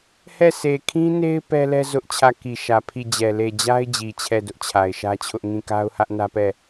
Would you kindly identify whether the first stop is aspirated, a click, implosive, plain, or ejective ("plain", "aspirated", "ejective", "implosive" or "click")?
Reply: aspirated